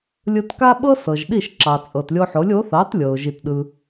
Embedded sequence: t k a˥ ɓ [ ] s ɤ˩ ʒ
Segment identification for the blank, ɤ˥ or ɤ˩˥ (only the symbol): ɤ˥